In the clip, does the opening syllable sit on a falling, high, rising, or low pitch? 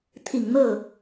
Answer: low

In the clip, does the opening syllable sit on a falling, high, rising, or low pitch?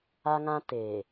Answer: high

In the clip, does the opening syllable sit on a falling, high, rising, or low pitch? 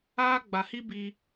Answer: high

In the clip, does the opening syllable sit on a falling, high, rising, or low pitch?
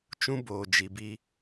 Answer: high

